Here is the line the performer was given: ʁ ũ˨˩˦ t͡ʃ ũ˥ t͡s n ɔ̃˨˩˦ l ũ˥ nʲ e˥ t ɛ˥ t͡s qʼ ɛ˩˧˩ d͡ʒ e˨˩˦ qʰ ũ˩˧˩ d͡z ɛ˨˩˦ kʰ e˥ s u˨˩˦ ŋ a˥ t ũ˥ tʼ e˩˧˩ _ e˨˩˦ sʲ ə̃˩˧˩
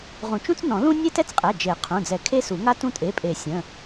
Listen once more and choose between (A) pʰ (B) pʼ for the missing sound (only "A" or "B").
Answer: B